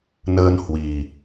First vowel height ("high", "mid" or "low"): mid